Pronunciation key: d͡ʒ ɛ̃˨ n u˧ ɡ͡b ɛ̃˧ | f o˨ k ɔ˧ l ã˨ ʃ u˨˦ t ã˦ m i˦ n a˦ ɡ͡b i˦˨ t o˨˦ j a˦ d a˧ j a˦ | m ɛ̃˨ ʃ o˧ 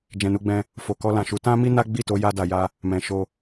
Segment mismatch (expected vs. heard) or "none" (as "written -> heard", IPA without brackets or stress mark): none